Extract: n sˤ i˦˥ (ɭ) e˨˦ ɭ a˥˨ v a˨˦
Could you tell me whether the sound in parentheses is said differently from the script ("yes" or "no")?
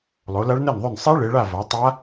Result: no